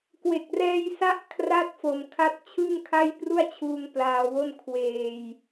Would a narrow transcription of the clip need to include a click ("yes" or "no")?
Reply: no